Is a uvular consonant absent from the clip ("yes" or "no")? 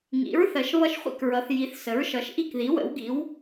no